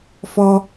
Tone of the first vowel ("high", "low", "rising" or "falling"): high